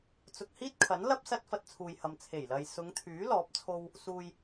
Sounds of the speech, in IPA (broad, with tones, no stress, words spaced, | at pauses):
t͡sʊ˨k̚hiː˥t̚kʰɐ˨˥n lɐ˥p̚ sɐ˧t̚fɐ˨t̚ t͡sʰuː˨jhɐ˨m t͡sʰe˨˩jlɐ˨j sʊ˨˧ŋt̪ʰyː˨˥ lɔː˨˥p̚t͡sʰo˧w | suː˨j